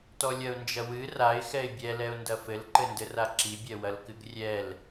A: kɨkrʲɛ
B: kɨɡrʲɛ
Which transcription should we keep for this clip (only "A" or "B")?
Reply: B